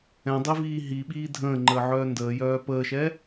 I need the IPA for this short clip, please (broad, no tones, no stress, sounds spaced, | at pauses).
ɛ̃ dˤ i v iː ɦ i ɓ iː dʱ ə̃ː ŋ͡ǃ əː ʕ œː n d əː j œː p əː ʃ ɛ